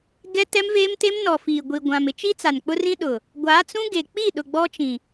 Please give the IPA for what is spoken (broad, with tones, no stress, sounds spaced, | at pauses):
ɡ ɛ˦ t ɛ˦ m v eː˦ m t e˦ m n ɔ˨ f iː˨ ɡʷ i˨ ɡʷ ã˨ m ɪ˦ t͡ʃ i˦ t͡s a˨ n k͡p ʊ˦ r ĩ˦ ɗ ʊ˨ | ɡʷ a˨˦ t͡s ũ˦ ɡ e˨ k͡p i˦˨ ɗ ʊ˨ ɡ͡b ɔ˦ t͡ʃ ĩ˨